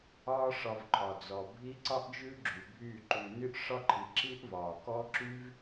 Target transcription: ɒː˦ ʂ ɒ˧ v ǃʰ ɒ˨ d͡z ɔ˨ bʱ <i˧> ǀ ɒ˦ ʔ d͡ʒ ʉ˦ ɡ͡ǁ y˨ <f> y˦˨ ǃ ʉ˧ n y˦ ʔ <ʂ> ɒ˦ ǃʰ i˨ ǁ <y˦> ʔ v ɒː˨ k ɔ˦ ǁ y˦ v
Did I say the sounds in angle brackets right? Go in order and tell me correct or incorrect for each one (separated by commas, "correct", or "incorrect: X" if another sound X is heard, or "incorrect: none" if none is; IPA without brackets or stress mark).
incorrect: i˦, incorrect: bʱ, correct, incorrect: i˦